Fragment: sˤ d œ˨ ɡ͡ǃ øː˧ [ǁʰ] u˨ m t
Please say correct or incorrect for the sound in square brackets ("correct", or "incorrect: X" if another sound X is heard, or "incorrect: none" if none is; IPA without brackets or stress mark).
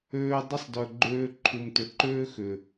incorrect: ǃʰ